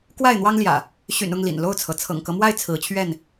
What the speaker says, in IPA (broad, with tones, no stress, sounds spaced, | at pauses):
k w a˥˨ ɪ̯ n̪ w ɑ˦ ŋ l j ä̰˨˩ | ɕ y̰˨˩ n ʊ˥˨ ŋ l ḭ˨˩ n l o˥˨ ʊ̯ t͡sʰ ɤ˩ t͡sʰ ɤ̰˨˩ ŋ k ɤ˦ m w a˥˨ ɪ̯ t͡sʰ ɹ̩˨˦ t͡ɕʰ ɥ ɛ˥˨ n